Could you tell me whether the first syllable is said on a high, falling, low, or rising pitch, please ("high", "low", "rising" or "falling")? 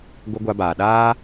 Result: high